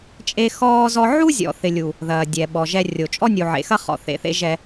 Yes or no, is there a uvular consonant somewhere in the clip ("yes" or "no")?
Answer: yes